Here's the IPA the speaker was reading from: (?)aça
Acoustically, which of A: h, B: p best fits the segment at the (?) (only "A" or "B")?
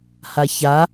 A